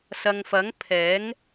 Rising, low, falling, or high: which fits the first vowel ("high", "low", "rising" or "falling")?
low